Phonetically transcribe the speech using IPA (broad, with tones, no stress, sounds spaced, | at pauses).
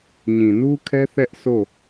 ɲ ĩ˨ n u˦ kʰ ɛ˦ θ ɛ˦ ʔ sʰ o˦˨